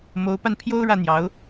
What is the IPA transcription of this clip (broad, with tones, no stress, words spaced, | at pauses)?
mo˨˦ʊ̯pa˧npʰjo˦ʊ̯ ɻä˥˨n̪jɑ˨˦ʊ̯